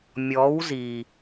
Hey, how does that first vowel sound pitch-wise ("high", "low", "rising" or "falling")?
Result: rising